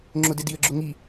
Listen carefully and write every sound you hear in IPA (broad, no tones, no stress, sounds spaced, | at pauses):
ŋ͡ǁ ʊ d e d i ə̯ ɡ͡ǁ ʊ ŋ i